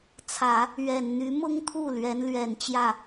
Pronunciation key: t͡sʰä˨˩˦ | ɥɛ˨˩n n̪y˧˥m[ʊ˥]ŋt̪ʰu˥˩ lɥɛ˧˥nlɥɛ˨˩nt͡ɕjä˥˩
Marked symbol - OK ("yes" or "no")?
yes